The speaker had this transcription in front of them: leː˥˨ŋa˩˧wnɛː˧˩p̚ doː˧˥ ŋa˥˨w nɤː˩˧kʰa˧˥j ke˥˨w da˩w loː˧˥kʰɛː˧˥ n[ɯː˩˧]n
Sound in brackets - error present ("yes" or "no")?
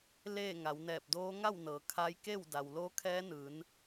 no